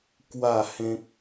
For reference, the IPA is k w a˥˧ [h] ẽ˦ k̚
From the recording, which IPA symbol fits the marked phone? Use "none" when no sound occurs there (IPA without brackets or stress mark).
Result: h